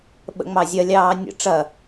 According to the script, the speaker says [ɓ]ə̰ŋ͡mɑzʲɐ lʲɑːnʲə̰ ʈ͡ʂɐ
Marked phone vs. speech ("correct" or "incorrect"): correct